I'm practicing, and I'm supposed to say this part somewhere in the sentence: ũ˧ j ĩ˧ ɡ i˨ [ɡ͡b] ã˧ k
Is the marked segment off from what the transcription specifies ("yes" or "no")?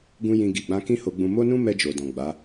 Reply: no